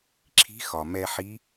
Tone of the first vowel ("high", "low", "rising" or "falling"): rising